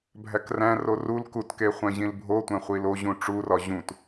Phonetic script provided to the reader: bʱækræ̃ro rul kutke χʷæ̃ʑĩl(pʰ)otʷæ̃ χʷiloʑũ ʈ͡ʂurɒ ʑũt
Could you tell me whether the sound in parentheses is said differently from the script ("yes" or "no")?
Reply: yes